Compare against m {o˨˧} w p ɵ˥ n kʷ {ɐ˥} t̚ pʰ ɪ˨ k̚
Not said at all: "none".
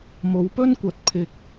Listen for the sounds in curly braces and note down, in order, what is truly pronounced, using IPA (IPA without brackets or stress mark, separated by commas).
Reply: o˨˧, ɐ˨˥